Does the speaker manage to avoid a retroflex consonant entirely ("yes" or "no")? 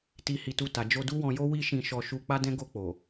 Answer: yes